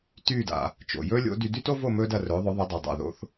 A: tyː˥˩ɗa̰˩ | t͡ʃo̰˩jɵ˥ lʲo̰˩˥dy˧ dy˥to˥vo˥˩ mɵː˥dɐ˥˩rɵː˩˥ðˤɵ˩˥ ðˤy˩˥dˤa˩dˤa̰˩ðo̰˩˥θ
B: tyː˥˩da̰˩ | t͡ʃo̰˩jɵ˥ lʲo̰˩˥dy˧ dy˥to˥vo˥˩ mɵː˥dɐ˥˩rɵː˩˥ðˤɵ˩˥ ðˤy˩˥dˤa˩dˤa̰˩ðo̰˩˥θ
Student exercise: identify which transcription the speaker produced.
B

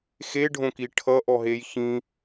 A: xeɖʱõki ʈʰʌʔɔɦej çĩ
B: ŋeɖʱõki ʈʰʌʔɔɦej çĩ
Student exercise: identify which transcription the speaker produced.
A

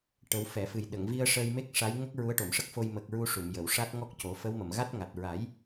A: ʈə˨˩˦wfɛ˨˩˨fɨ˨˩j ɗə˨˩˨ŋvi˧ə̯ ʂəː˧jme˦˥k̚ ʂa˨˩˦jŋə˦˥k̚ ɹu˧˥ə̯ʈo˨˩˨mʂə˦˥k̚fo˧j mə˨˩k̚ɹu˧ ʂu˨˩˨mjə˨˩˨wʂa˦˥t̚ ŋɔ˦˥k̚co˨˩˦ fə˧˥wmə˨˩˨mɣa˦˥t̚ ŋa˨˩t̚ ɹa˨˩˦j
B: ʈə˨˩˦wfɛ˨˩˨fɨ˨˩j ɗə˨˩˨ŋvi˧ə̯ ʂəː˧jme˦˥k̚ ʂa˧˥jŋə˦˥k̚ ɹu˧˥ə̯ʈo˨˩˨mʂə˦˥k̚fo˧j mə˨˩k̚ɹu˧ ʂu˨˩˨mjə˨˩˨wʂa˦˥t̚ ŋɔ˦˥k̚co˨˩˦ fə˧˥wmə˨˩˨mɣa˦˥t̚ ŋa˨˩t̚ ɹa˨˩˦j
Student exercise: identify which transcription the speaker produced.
B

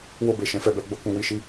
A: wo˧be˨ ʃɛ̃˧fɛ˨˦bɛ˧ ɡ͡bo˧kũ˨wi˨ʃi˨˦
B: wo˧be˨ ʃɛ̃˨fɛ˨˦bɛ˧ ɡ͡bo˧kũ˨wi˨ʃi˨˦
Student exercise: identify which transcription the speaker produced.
B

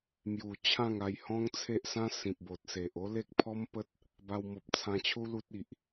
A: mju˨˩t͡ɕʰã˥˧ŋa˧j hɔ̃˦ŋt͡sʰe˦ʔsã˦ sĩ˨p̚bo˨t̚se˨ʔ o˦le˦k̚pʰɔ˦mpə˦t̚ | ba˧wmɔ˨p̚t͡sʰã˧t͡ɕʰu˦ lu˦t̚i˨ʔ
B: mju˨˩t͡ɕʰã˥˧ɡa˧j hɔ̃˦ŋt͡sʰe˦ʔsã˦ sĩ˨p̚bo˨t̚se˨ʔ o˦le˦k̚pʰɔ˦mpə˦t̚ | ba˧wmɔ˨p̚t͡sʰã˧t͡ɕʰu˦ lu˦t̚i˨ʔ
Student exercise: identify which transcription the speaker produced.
A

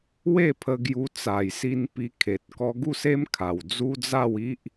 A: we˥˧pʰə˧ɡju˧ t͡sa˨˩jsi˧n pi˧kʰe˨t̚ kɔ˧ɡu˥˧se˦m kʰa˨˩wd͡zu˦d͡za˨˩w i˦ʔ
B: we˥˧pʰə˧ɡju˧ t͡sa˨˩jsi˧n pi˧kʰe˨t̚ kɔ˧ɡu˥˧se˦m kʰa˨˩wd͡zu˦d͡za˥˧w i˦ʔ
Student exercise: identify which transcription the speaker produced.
B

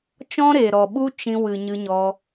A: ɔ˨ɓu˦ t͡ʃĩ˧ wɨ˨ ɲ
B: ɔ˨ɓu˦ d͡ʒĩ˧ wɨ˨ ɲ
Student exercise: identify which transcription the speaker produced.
A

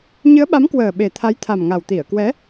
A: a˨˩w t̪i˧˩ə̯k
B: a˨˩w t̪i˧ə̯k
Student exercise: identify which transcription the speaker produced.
A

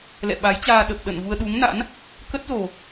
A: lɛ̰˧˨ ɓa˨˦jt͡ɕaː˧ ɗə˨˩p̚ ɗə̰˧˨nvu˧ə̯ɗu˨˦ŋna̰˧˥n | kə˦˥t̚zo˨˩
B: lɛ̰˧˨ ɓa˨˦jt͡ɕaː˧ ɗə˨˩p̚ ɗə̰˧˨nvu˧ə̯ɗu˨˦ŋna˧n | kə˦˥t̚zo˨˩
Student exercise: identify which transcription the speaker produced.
A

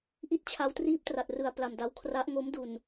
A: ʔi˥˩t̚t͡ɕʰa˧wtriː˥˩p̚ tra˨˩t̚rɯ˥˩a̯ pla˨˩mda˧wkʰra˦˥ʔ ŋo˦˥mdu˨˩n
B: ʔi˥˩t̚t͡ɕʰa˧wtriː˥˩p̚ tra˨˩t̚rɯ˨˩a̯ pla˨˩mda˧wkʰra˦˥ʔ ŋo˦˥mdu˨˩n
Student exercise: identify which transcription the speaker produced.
B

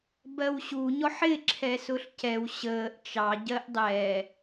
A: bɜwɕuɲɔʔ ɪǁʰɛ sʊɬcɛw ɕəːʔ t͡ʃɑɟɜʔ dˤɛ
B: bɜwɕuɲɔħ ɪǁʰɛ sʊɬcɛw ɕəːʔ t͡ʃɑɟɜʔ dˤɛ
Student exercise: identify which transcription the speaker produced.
B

